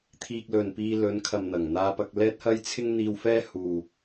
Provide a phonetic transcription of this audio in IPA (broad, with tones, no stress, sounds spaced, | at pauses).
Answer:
t̪ʰ iː˧ k̚ l ɵ˨ n p iː˧ l ɵ˨˧ n kʰ ɐ˨ m n̪ ɐ˨˩ ŋ n̪ aː˧ p ɐ˧ k̚ l ɛː˥ t̚ h ɐ˥ j t͡sʰ ɪ˥ ŋ n̪ iː˧ w f ɛː˥ h uː˨